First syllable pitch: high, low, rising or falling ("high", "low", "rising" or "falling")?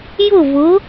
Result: falling